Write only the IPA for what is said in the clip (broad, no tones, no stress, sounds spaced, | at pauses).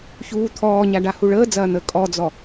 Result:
ç uː t̪ʰ ɔː ɲ a ɖ a h u ɭ əː d͡z ɐː n̪ ə kʼ ɔ d͡z ɔ